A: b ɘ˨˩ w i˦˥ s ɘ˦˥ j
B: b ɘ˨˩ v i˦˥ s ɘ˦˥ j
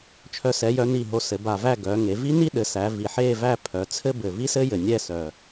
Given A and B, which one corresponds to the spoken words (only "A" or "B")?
B